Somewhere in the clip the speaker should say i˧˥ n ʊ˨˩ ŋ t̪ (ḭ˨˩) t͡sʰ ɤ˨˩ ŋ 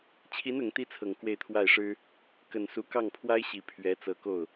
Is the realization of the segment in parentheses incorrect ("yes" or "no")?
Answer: yes